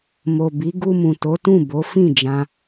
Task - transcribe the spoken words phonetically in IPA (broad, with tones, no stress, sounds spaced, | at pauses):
m o˨ b i˨˦ ɡ u˧ m ũ˨ t o˨˦ t ũ˦˨ b o˨˦ f ĩ˦˨ d͡ʒ ã˧